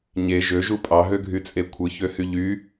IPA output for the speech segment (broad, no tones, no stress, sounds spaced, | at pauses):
ɲ e ʒ ø ʒ u pʼ ɑ ɦ ø ɡʱ y t͡sʼ e kʷʰ ɯ ç ø h y ʎ y